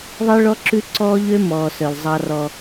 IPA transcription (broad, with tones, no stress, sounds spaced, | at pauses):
ðˤ i˦ ɭ ɔ˦ ǁ ʉ˦ ǀ ɔː˦ ʎ ø˦ m ɔː˨ s œ˨ l zˤ ɑ˦ r ɔ˦